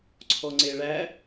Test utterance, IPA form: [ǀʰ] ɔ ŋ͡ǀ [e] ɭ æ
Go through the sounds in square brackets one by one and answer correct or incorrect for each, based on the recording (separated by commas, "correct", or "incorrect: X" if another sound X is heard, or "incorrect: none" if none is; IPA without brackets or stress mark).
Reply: correct, correct